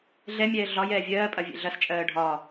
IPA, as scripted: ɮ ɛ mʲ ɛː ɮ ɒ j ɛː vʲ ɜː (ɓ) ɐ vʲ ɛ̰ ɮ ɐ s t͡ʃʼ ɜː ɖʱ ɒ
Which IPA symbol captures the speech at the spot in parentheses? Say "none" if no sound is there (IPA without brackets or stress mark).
pʼ